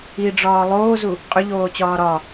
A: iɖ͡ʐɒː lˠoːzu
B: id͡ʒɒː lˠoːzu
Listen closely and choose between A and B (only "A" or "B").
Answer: A